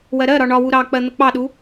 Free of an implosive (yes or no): no